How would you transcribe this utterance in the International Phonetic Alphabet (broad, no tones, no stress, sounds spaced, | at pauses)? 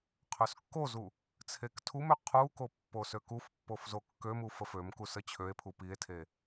qʰ ø s kː o z u | t͡sʰ e k tʰ u m ø qʰ u k o pː o s ø k u f pː o f z o kː ø m u f ə f ø m k u s ə t͡ɕʰ ø e̯ pʰ u p i e̯ tʰ e